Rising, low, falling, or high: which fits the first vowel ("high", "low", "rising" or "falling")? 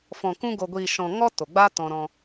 low